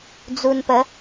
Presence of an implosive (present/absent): absent